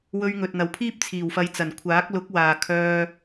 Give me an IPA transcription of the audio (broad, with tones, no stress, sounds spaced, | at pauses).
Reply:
w ɵ˧ ɥ ŋ ɵ˨ t̚ n̪ ɐ˨ w pʰ iː˥ p̚ t͡sʰ iː˨˩ w f ɐ˧ j t͡s ɐ˨˩ n kʷʰ aː˨˥ k̚ l ʊ˨˥ k̚ w aː˨ kʰ œː˧